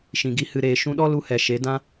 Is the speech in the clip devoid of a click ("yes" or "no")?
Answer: yes